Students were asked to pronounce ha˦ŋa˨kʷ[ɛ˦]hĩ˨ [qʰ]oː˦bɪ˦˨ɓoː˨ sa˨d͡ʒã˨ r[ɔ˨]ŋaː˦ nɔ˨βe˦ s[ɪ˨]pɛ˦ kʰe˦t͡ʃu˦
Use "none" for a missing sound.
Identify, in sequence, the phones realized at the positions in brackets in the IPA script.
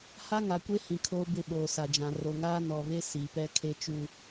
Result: e˦, kʰ, o˨, i˨

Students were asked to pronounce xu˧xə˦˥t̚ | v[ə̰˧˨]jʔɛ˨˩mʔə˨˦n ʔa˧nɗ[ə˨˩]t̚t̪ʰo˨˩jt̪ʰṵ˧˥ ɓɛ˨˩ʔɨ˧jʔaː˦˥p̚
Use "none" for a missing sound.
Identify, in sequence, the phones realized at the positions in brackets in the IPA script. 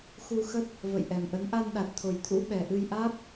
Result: ə̰˧˨, a˨˩

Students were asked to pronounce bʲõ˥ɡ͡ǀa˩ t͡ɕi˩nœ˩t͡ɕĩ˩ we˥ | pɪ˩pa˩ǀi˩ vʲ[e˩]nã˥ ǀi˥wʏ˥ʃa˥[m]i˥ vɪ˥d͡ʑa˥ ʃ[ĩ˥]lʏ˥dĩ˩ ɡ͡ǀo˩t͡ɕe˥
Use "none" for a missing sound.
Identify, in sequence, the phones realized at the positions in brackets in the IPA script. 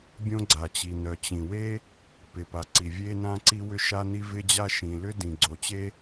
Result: e˥, n, ĩ˩

